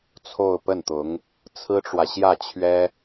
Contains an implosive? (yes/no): no